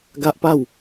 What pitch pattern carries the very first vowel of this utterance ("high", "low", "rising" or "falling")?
high